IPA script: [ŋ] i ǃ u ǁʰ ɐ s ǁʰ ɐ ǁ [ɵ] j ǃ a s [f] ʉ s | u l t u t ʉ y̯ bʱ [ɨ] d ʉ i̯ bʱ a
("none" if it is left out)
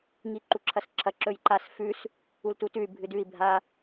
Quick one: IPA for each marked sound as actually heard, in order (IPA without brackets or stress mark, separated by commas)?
ŋ, ɵ, f, ɨ